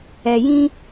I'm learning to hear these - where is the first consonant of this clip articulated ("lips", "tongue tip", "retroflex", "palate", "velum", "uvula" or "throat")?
palate